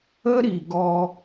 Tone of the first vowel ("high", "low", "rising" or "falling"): high